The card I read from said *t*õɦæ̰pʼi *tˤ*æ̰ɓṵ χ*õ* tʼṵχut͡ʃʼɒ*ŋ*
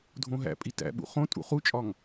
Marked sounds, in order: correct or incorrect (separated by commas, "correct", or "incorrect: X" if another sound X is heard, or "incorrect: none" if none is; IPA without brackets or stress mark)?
incorrect: dʱ, incorrect: t, correct, correct